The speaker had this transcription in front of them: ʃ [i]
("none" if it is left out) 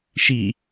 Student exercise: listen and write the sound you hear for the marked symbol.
i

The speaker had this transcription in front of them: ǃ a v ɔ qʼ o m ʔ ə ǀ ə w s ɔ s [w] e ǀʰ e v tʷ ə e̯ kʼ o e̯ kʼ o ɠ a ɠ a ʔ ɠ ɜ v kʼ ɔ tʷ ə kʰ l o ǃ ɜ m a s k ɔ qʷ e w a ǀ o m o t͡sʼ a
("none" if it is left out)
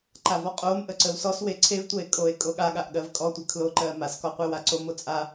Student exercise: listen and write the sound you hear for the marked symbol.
w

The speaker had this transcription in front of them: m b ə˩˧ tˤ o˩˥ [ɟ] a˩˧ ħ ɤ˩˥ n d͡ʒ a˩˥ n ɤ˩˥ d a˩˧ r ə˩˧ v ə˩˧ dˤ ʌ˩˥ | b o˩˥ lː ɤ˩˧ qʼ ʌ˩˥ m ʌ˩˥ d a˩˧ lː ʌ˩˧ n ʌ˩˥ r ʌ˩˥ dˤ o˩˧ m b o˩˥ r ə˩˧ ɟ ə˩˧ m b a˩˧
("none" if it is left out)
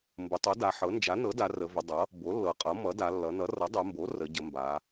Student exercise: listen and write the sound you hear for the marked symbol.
d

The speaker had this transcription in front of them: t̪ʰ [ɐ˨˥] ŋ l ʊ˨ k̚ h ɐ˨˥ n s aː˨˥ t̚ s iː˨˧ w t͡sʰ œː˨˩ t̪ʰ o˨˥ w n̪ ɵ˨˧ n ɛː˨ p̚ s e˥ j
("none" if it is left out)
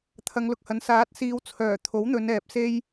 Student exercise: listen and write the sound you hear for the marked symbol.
ɐ˨˧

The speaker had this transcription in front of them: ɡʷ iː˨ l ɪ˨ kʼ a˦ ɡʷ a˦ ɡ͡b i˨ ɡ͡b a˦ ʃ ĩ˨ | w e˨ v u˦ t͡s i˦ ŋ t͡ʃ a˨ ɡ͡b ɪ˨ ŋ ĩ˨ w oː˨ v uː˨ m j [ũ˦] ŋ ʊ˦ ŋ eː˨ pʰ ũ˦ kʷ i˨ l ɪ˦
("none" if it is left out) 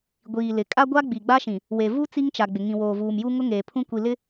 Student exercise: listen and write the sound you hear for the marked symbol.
u˦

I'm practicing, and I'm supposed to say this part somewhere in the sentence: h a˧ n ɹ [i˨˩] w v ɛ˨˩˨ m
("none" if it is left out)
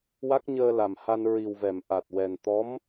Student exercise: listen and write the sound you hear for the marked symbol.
i˨˩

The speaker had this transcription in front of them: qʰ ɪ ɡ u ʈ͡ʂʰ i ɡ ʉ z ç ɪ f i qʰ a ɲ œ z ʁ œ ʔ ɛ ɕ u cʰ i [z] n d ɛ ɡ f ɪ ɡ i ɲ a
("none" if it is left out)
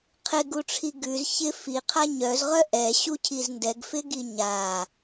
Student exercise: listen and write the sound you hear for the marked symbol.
z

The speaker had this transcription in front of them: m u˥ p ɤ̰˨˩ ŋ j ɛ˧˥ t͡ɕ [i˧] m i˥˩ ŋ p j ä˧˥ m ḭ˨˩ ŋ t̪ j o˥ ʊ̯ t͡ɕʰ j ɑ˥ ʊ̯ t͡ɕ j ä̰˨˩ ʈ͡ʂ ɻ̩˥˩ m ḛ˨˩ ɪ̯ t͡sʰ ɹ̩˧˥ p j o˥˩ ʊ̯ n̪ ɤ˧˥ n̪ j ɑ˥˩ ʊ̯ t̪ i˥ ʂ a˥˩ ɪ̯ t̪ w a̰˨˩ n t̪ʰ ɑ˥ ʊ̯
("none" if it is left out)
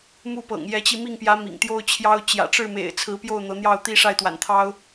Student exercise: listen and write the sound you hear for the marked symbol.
i˧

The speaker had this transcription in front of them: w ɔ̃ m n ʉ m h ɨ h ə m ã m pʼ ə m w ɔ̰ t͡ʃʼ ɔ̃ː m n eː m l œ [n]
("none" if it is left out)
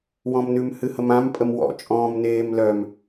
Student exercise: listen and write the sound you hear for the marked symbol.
m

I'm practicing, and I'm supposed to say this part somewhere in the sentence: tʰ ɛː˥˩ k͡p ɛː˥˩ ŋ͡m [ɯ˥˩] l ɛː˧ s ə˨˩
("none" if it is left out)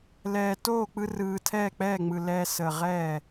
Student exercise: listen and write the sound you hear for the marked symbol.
ɯ˨˩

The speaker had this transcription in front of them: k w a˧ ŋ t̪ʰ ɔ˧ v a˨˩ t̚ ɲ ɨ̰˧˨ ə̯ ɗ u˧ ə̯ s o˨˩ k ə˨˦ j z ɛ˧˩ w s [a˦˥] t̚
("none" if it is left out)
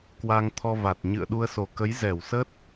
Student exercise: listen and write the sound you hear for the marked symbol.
ə˦˥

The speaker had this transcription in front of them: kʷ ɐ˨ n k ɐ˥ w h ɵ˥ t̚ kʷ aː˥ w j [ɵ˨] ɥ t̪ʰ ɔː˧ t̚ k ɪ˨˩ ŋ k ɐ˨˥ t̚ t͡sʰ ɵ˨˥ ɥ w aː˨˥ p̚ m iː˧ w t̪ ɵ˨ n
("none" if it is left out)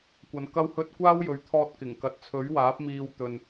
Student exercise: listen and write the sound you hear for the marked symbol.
ɵ˨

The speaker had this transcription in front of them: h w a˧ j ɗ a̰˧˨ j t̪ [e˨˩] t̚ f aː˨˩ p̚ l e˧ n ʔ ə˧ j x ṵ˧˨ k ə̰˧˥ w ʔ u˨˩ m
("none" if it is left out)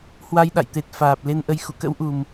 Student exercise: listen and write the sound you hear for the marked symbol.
e˨˩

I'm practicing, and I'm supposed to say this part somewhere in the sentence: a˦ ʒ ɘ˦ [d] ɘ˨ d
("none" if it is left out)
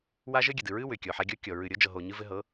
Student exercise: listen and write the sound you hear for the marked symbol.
ɡʲ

